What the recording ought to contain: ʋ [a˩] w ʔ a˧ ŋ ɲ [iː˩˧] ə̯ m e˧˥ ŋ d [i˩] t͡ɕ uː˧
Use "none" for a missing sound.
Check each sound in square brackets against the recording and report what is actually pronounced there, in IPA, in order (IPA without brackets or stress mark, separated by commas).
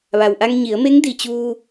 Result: a˩, i˩˧, i˩